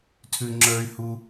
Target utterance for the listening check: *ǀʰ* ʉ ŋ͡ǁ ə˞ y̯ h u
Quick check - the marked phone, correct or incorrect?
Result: incorrect